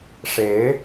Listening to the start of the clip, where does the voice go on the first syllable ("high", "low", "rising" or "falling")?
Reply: rising